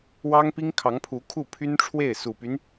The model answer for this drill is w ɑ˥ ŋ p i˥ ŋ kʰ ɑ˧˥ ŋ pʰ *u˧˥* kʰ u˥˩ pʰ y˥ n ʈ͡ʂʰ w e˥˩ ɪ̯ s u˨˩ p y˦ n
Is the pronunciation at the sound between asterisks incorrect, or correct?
correct